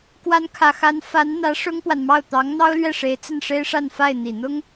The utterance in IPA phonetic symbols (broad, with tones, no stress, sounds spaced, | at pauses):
k w a˧˥ n kʰ ä˨˩ x a˧˥ n f a˧˥ n n̪ ä˧˥ ʂ ʊ˥ ŋ p w a˨ n m ɑ˥˩ ʊ̯ t̪ ɑ˧˥ ŋ n̪ ɑ˥ ʊ̯ l ɥ ɛ˥˩ ʂ e˧˥ ɪ̯ t͡s ə˥˩ n ʂ e˥ ɪ̯ ʂ a˥˧ n f a˥˩ ɪ̯ n̪ i˨˩ n̪ ʊ˥ ŋ